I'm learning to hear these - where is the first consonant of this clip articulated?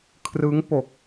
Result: velum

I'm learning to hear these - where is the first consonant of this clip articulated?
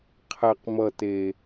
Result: uvula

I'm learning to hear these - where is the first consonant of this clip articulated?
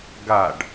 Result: velum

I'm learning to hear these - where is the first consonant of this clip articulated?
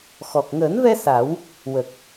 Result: velum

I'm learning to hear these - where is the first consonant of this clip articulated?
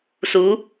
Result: tongue tip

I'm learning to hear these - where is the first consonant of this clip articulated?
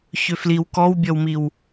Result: palate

